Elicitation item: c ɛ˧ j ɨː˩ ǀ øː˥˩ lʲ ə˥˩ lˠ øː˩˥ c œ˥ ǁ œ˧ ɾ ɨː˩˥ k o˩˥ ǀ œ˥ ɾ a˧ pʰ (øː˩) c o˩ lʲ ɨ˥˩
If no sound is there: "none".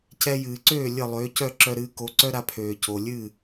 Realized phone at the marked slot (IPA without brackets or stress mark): øː˩